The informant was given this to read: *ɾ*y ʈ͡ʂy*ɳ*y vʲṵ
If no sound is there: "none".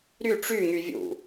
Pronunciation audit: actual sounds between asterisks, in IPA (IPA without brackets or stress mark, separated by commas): ɾ, ŋ